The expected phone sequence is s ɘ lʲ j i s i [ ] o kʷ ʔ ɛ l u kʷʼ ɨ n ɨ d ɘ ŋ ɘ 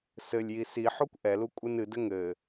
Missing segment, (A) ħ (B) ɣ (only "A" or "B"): A